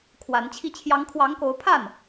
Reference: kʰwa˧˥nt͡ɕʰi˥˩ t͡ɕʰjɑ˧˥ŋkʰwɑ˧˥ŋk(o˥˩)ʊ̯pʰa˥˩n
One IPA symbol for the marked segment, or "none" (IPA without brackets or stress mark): o˧˥